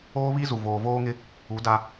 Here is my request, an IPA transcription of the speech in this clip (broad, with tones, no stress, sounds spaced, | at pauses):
oː˦ β i˦ z u˨ v oː˨ v oː˦ ŋ ɪ˦ | u˨˦ d a˦